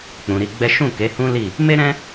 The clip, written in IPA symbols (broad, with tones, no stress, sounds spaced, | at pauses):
k͡p ũ˨ ɾ i˧ ɡ͡b ɛ˦ ʃ ũ˦˨ k e˨˦ h ũ˦ l i˦˨ | m e˦ ɾ ɛ̃˦